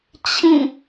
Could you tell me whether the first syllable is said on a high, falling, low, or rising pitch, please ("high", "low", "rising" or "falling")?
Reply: falling